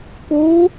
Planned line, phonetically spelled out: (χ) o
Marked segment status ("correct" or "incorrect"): incorrect